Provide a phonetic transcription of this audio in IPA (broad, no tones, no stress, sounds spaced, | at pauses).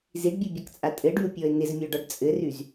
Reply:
z i ɖ bʲ u bʲ a k t͡sʼ a tʼ ɘ ɖ y ʊ̯ pʲ ɔ ɪ̯ n ɪ z mʲ ɔ ɖ ɒ ɖ t͡sʼ ɘ r y z